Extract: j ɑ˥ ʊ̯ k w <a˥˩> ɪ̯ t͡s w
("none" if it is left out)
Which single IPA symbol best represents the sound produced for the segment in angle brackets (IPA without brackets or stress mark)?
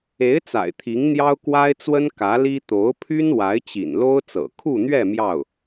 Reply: a˥